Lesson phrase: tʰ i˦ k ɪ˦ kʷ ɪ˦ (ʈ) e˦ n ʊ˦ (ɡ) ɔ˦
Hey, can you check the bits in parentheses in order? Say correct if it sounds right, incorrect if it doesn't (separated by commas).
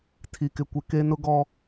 incorrect, correct